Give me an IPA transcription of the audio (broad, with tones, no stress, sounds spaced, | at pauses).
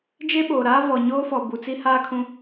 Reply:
d͡ʒ e˦ ɓ oː˨ ɾ aː˦ v ɔ˨ ɲ oː˦ f ɔ˨ b u˨ t͡s i˦ h aː˦ kʰ ũ˦